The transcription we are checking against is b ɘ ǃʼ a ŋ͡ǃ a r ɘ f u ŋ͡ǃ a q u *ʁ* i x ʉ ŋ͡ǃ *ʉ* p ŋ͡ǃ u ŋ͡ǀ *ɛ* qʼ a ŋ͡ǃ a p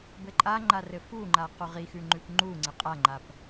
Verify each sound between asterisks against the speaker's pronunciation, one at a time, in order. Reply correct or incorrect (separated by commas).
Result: correct, correct, incorrect